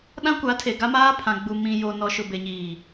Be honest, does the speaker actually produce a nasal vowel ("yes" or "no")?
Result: yes